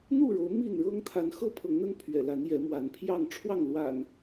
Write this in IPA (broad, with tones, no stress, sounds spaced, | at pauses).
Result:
n̪ u˥˨ ɻ o˨˦ ʊ̯ m i˥˨ n ɻ ɤ˦ ŋ t̪ʰ a˨˦ n x ɤ˦ pʰ ɤ˨˦ ŋ n̪ ə˦ n pʰ ɥ ɛ̰˨˩ l a˨˦ n j ɛ˨˦ m w a˨˦ n pʰ j ɑ˥˨ ŋ ʈ͡ʂʰ w ɑ˥˨ ŋ l w a̰˨˩ n